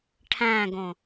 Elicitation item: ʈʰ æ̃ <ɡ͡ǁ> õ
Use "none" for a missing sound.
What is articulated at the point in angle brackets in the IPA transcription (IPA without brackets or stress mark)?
ɡ